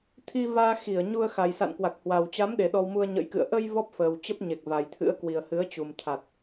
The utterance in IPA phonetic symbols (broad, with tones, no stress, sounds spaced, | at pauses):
t̪ʰ i˧ v aː˧ x i˧˩ ə̯ ɲ u˧ ə̯ x a˨˩ j s a̰˧˨ n k w a˨˩ k̚ h w a˨˩ w t͡ɕ a˨˦ m ɗ e˨˩ ɗ ɔ˧ w m u˧ ə̯ ɲ ə̰˧˥ j k ɨ̰˧˨ ə̯ ʔ ə˧ j v ɔ˦˥ p̚ f əː˨˩ w t͡ɕ ə˦˥ p̚ ɲ e˨˩ k̚ v a˨˩ j t̪ʰ ɨ̰˧˥ ə̯ k w i˨˩ ə̯ h ɨ˨˦ ə̯ t͡ɕ u˨˩ m t̪ʰ a˨˩ t̚